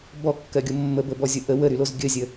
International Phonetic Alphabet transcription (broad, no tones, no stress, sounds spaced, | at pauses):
b ɔ kː ɜ ɡʲ o mː ə b ə b ɔ zʲ o ʔ ə w ə ɾ y l o z ɡʲ ə zʲ ə